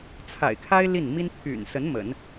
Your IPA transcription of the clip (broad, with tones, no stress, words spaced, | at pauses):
t͡sʰa̰˨˩ɪ̯kʰa˥ɪ̯ li˥˩n mi˥n pʰy̰˨˩nsə˧˥n mə̰˨˩˦n